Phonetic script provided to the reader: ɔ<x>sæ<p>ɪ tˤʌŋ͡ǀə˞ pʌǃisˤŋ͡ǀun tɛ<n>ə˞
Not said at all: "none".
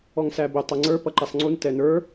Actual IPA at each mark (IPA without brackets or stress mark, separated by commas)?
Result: ŋ, b, n